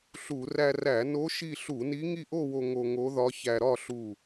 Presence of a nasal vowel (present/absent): absent